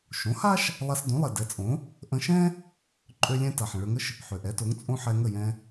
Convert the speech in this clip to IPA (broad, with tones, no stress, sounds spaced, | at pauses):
ʃ õ˩˥ h a˥ ʃ | lˠ a˧ s d õ˩˥ lˠ ɛ˩ d ɛ˩˥ t͡sʼ õ˩˥ | ʔ ə̃˧ ʃ ɛ̃˥ | ǃʼ ø˥ lʲ ɛ̃˥ t a˩ ħ ə̃˩ ɭ ø˧ ŋ ə˥ ʃ | ħ ø˩ ʔ ɛ˩˥ t o˩˥ ŋ t͡sʼ õ˥ ħ ɛ˧ ŋ ə˥˩ j ɛ̃˧